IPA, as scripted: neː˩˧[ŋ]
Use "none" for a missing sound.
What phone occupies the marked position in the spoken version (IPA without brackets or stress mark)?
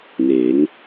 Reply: ŋ